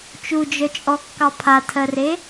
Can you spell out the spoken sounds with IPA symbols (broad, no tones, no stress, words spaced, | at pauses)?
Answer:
t͡ʃud͡ʒœt͡ʃʼɔkːɑ pʰatʰɜre